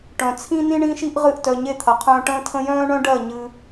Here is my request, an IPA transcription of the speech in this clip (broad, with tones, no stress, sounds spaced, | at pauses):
ʈ œ̃˨ t͡sʰ ĩ˦ n ĩ˦ ɳ ĩ˦ ʃ i˦ ʔ ʁ ɨ˦˨ ʔ t œ˧ ɲ e˦˨ t̪ʰ ɐ˨ qʰ œ̃ː˧ ʈ ə̃ː˦ tʰ ə̃˦ j œ̃ː˦ ɳ œ̃˦ ɖ ɜ˦˨ ɲ ɨ˧